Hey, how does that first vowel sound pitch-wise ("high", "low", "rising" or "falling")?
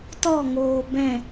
falling